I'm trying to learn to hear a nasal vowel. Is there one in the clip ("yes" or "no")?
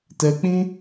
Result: yes